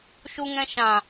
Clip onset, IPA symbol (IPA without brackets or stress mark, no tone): ʃ